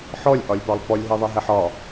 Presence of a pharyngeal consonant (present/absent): present